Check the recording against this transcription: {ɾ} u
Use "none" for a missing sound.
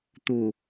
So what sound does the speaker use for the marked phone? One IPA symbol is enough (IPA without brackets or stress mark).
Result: t̪